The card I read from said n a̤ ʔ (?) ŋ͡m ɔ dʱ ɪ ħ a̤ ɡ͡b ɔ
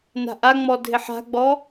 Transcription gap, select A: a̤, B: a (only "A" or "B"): B